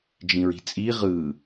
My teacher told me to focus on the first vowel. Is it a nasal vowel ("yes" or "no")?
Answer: yes